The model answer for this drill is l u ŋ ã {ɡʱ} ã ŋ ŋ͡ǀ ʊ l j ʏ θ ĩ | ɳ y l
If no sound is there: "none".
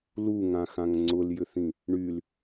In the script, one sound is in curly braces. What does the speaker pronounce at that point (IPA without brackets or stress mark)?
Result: x